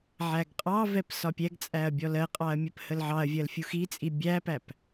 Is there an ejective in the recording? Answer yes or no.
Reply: yes